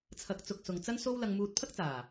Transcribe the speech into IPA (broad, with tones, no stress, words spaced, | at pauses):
t͡sʰɐ˨k̚t͡sʊ˨k̚ sʊ˨ŋt͡sɐ˥nso˥w lɐ˧ŋmuː˧t̚pʰɐ˥k̚t͡saː˨˩